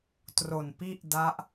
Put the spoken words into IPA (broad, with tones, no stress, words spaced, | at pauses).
tro˨˩npi˥˩ʔda˦˥ʔ